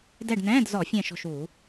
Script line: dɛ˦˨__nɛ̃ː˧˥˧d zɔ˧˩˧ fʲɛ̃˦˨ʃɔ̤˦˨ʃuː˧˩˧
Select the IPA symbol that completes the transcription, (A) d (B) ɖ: B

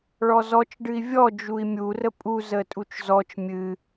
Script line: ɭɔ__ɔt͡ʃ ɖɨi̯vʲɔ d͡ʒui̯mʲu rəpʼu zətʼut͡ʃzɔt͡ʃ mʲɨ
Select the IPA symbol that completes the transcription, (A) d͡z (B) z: B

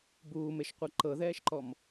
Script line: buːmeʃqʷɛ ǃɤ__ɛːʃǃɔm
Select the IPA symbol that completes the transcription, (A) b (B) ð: B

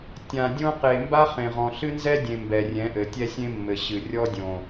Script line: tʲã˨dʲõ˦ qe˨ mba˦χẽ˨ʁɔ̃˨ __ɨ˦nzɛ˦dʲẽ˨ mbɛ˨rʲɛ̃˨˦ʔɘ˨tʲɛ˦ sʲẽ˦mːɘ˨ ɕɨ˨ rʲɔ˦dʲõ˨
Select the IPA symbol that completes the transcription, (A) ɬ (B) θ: A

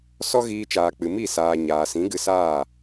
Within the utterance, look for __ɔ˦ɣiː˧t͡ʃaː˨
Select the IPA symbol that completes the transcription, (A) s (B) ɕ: A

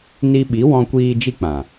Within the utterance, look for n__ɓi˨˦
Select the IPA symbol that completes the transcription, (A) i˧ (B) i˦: A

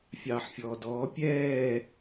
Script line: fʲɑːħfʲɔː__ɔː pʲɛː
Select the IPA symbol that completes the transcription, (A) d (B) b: A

